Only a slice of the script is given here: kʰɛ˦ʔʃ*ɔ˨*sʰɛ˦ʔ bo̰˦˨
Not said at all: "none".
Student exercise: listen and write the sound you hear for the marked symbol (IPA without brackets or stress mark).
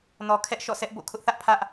ɔ̰˦˨